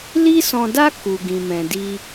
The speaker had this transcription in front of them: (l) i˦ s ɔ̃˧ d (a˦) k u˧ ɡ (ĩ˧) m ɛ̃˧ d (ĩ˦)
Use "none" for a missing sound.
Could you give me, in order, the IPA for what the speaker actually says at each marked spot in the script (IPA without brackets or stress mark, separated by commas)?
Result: l, a˦, ĩ˧, i˦